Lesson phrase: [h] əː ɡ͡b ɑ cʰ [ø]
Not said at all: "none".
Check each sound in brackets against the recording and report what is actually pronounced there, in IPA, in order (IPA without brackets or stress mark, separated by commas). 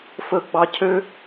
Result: f, ø